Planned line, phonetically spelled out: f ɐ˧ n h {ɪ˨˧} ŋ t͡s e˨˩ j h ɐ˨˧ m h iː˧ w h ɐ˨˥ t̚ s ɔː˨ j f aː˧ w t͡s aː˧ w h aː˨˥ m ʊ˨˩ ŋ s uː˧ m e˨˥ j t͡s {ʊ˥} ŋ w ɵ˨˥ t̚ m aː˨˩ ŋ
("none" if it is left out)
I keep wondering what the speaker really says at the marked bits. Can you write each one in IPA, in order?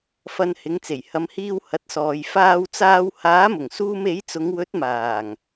ɪ˨˧, ʊ˨˧

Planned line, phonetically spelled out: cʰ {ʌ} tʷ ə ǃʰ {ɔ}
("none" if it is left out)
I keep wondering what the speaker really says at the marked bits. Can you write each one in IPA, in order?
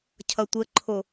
ʌ, o

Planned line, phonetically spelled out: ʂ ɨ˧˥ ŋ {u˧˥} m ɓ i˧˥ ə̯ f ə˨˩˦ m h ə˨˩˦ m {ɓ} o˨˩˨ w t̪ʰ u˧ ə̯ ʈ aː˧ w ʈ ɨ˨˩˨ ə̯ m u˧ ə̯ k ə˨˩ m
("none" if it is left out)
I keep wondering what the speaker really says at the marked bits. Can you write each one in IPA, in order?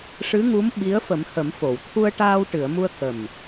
u˧˥, f

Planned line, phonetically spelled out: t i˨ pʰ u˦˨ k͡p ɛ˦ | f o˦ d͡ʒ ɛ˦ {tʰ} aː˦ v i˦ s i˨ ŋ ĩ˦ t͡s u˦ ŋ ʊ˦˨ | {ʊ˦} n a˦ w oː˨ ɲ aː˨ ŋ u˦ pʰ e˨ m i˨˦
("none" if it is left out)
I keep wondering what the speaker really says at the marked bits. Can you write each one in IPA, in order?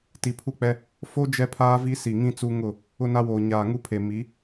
pʰ, ʊ˦

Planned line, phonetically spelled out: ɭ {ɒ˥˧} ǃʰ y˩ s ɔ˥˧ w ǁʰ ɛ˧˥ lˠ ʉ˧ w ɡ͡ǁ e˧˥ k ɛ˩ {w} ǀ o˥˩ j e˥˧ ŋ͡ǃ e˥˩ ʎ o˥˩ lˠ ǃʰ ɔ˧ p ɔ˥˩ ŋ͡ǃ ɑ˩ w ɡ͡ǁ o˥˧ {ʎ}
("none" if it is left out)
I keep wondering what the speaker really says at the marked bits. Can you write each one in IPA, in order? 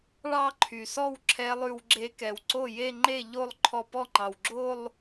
ɑ˥˧, w, lˠ

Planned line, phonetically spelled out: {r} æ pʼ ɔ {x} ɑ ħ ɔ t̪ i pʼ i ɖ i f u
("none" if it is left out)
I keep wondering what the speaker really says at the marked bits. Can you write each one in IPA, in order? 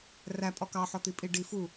r, k

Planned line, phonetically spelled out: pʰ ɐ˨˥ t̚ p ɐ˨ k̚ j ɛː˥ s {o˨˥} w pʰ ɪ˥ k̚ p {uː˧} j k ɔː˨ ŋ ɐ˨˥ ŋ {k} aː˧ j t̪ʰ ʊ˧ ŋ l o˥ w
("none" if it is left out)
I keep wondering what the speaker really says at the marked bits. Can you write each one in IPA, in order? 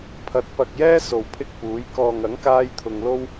o˨, uː˨˥, k

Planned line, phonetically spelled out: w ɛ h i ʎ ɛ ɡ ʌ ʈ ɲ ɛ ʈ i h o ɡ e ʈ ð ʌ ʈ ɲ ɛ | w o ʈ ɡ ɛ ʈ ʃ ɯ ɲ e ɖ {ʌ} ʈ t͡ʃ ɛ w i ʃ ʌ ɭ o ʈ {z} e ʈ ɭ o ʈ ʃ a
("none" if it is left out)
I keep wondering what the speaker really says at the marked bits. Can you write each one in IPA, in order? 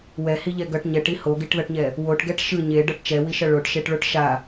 ʌ, ʃ

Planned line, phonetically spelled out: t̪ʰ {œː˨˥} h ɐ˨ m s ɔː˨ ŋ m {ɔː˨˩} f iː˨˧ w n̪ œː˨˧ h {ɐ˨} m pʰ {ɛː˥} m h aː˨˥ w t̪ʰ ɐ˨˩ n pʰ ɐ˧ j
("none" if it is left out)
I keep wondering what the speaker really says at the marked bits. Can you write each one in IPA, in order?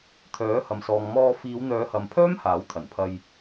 œː˨˥, ɔː˧, ɐ˨, œː˥

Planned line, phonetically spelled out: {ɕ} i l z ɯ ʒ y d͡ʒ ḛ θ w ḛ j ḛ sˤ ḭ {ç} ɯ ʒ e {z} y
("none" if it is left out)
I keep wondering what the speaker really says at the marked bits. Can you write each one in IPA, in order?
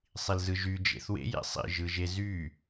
sˤ, ʒ, z

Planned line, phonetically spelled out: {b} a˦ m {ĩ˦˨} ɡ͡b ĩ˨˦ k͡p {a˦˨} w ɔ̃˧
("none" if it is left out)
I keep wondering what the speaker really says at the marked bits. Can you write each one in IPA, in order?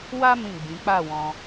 w, ĩ˦˨, a˦˨

